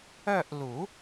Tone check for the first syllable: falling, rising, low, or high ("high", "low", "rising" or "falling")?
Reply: falling